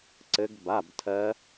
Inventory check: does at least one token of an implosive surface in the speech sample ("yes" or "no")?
no